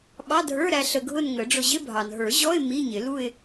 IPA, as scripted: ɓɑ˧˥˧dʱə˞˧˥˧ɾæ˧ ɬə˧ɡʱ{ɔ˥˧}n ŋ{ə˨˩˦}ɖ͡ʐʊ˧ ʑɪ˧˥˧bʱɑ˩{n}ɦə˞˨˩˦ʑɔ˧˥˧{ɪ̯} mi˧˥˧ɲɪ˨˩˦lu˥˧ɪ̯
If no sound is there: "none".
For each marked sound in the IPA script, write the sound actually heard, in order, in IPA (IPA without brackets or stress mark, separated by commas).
ʊ˥˧, ə˨˩˦, n, ɪ̯